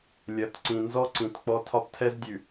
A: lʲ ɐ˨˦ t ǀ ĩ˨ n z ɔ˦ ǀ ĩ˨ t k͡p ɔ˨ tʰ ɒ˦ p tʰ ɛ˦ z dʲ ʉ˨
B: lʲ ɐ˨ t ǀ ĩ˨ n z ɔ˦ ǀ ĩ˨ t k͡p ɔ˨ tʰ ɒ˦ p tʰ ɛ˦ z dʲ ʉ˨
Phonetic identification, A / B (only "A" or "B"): A